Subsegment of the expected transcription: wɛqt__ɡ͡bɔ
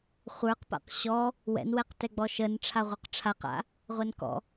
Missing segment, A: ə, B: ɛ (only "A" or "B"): B